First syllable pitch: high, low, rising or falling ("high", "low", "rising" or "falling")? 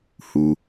high